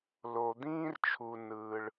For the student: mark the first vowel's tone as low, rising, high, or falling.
low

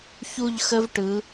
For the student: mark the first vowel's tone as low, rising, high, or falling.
falling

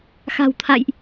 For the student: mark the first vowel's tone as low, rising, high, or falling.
low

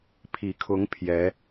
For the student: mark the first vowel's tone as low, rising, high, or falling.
low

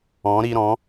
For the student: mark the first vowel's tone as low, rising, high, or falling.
rising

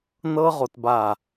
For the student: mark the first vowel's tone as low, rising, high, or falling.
high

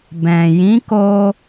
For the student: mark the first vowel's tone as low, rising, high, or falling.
low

